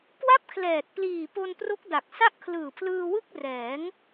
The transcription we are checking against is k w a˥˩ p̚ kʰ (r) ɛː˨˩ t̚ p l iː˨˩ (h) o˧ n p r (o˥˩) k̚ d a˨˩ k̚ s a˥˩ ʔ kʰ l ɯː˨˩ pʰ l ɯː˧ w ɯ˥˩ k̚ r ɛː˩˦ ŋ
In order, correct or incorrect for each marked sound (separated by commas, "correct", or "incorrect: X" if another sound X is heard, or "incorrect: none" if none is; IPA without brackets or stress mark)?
incorrect: l, incorrect: p, incorrect: o˦˥